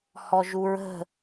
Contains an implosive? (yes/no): no